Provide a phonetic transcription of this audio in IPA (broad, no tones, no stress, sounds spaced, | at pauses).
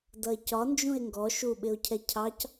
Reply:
d ʌ e̯ c ɒ n d͡ʒ ũ e̯ ŋ ɡ ɔ ʃ u ɓ ɪ o̯ cʰ ɛ cʰ ɑ c